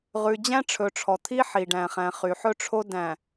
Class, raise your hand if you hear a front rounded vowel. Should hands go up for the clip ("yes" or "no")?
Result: yes